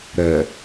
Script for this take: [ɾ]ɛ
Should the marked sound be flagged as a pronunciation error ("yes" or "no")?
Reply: no